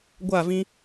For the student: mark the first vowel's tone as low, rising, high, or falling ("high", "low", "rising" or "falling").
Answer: falling